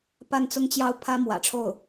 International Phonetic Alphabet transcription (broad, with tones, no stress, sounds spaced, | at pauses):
p a˥˩ n t͡s ʊ˥ ŋ t͡ɕ j ɑ˥˩ ʊ̯ pʰ ä˥ m w ä̰˨˩ ʈ͡ʂʰ o˥˩ ʊ̯